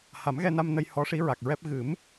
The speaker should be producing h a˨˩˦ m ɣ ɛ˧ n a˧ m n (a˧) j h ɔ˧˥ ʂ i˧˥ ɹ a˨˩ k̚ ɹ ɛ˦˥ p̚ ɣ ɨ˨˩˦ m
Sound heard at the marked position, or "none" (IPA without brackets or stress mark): ə˧